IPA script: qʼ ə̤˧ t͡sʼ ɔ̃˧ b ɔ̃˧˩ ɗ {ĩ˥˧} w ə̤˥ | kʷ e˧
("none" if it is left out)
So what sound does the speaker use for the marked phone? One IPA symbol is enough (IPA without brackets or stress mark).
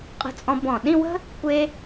ĩ˥˧